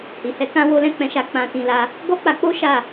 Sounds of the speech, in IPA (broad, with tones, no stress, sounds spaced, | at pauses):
h i˨ h ɛ˨˦ k ã˧ w o˦ l ɛ̃˦ k͡p ɛ̃˧ ʃ a˧ k͡p ã˧ t ĩ˧ l a˧ | ɡ ɔ˦ k͡p a˧ k͡p o˦ ʃ a˦˨